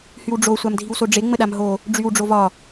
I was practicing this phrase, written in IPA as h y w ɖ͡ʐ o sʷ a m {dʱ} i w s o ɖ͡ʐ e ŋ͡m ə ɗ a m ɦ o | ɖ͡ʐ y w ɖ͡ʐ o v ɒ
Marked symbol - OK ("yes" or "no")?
yes